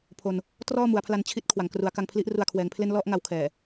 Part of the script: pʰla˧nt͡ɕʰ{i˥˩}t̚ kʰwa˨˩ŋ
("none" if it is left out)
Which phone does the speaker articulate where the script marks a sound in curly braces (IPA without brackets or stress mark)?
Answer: i˦˥